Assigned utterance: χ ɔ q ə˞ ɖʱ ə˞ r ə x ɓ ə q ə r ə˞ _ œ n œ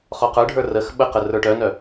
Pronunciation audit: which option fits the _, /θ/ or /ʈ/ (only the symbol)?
ʈ